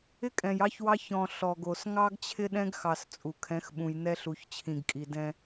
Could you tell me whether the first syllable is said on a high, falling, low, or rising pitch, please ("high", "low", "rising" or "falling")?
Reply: high